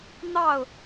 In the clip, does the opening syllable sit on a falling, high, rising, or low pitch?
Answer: falling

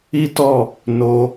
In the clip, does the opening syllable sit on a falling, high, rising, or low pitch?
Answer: high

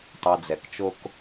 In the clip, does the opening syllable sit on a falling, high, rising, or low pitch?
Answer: low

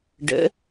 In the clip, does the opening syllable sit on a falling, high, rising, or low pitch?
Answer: rising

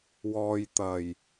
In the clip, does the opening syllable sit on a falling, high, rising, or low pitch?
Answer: low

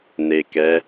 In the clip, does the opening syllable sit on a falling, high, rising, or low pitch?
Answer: low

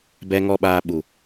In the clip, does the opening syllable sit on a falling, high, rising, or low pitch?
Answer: low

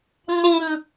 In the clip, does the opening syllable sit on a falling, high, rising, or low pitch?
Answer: low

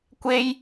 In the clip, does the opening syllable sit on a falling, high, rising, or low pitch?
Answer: high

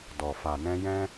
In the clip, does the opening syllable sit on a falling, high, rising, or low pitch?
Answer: low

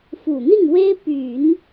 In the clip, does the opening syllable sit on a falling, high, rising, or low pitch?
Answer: low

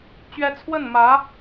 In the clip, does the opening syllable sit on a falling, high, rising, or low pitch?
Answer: rising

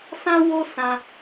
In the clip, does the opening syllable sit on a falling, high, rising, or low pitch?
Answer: high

